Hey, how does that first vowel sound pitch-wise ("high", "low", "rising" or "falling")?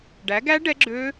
rising